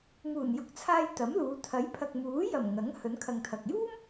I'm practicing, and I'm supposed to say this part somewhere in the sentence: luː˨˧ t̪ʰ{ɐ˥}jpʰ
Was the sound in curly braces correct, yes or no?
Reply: no